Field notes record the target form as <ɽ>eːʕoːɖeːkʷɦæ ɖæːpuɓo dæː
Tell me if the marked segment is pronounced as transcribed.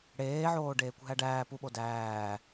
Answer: yes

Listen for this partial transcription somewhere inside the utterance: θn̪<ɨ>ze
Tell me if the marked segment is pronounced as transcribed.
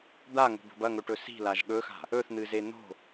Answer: yes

